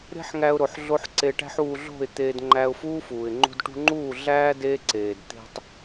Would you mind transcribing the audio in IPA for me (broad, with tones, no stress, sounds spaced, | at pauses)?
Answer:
ɾ e̤˦ ħ ŋ æ˧ ʊ̯ ɾ o˨ ħ ɮ o˧ ħ ǀ e˧ ʈ æ̤˦ ħ uː˧ ɮ o̤˦˨ ɪ̯ t̪ eː˧ d ŋ͡ǃ æ˧ ʊ̯ f uː˦ f uː˨ ɪ̯ ŋ͡ǃ ṳ˧ d ʈ ṳ˧ ŋ͡ǃ uː˦˨ ɮ æː˦ d eː˦ ǀ eː˨ d t̪ e̤˦ tˤ